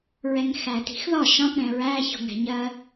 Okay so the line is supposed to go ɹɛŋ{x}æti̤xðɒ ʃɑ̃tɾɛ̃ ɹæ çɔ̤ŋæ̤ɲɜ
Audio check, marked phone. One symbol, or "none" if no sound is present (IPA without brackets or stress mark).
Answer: x